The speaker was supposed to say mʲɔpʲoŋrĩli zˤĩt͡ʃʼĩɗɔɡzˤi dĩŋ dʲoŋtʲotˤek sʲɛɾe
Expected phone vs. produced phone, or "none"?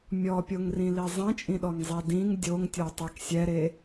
ɡ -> ŋ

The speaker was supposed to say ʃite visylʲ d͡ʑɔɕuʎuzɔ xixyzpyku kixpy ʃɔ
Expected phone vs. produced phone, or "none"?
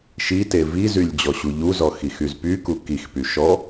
s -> z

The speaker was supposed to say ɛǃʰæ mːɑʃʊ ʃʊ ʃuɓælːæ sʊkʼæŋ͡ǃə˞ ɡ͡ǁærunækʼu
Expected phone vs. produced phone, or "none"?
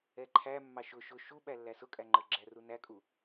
none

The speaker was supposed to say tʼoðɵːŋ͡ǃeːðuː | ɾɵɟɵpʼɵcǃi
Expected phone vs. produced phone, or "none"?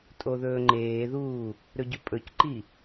none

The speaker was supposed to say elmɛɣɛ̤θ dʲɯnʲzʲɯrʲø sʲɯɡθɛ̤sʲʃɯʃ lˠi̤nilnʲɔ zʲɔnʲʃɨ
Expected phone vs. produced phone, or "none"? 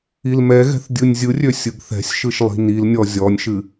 e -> i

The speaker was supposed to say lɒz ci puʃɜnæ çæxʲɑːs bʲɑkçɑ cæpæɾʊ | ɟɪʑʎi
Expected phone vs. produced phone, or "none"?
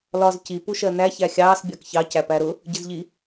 ʑ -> z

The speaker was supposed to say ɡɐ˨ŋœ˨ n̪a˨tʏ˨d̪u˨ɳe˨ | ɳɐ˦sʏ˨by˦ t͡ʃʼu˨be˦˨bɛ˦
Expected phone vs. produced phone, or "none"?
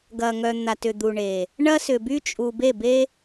ɛ˦ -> e˦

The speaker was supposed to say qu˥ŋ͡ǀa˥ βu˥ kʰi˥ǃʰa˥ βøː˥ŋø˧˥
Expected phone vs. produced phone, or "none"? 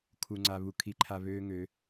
q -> kʰ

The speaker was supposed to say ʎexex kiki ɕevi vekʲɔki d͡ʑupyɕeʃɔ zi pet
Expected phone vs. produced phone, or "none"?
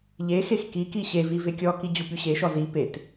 none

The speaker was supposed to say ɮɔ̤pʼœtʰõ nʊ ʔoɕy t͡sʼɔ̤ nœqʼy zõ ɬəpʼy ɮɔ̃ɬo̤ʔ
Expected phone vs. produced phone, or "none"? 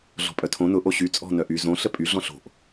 qʼ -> ʔ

